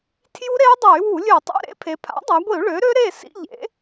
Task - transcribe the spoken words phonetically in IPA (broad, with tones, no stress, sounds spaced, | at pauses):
tʰ j u˦˥ ɾ e˦˥ y̯ dˤ ɛ˧˩˧ y̯ w u˧˩˧ lʲ ø˧˩˧ tˤ ḛ˧˥˧ ɾ ḛ˦˥ pʰ e˩˧ pʰ a̰˩˥ dˤ a˩˧ ɡʷ i˧˩˧ u̯ ɭ ø˩˥ ɾ ø˦˥ ɾ e˥˨ s ḭ˧˥˧ ʎ ḛ˩˥